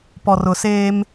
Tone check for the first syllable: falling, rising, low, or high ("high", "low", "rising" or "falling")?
low